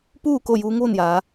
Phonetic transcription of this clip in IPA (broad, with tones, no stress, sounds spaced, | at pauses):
p uː˥˨ k o˥˨ j uː˧˥ ŋ ʋ o˥˨ n j aː˩˧